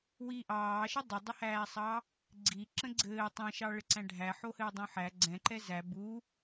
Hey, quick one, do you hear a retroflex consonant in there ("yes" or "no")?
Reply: yes